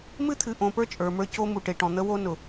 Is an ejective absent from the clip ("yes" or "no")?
no